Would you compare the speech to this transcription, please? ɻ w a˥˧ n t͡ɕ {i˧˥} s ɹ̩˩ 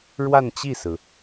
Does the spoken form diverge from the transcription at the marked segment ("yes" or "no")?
yes